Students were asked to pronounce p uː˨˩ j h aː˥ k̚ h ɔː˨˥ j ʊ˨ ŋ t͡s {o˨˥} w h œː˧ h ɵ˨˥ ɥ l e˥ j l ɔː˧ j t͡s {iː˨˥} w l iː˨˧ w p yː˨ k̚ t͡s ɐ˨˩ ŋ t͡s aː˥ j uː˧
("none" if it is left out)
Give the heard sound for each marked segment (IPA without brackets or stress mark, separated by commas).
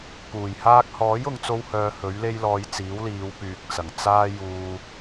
o˧, iː˨˥